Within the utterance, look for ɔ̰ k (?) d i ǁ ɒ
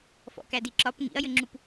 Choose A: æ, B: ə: A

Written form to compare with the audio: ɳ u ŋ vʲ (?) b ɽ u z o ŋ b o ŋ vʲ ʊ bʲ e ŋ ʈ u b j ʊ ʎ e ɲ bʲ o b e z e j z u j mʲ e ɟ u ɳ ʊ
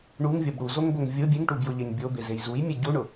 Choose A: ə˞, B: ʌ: B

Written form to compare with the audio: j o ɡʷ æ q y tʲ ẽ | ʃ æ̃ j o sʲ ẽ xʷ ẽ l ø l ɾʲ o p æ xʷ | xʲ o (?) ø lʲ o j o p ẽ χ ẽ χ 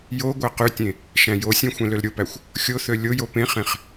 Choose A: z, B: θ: B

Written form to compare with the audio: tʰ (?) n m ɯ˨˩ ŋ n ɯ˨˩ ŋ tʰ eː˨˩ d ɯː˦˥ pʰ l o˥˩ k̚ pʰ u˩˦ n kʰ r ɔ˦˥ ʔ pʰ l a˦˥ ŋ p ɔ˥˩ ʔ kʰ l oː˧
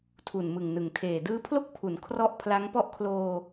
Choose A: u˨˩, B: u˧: A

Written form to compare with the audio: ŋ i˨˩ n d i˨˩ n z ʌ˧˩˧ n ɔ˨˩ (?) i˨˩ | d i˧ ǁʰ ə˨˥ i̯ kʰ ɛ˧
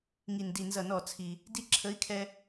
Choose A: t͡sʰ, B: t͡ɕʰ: A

